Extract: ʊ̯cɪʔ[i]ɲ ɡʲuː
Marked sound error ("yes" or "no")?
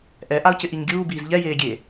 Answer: no